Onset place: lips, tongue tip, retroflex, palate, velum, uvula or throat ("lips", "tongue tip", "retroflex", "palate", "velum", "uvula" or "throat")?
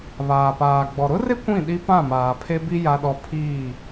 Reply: lips